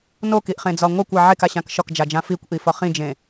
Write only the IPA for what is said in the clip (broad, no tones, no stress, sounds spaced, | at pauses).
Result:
n o k i ʔ χ ẽ d͡z ɒ ŋʷ a kʷ a ʕ e k a ɕ ã k ʃ ɒ k d͡ʒ a d͡ʒ ã f i kʷ ʔ i f ɒ χ ĩ d͡ʒ ẽ